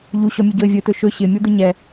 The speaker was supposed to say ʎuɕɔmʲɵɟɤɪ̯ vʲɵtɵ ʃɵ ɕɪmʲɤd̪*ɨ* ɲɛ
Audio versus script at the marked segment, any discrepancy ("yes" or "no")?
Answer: no